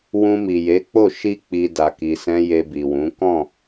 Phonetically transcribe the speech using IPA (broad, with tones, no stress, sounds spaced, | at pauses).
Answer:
w ũ˧ m i˨ j e˨˦ k͡p o˦˨ ʃ i˧ k͡p i˨ d a˨ k i˨ s ɛ̃˧ j e˧ b i˨ w ũ˨˦ k ɔ̃˦˨